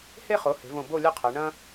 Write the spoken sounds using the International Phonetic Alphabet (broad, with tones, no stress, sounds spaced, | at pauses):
h e˧ χ o˩˧ h e̤˩˧ v õ˧˩ b o˥˧ lʲ ɐ˥ qʰ ɛ˩˧ ɳ ɐ̃˥